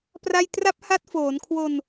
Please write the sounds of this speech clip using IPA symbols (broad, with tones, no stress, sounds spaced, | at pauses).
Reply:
p r a˥˩ j t r a˦˥ p̚ h a˦˥ t̚ f oː˩˦ n kʰ w o˧ n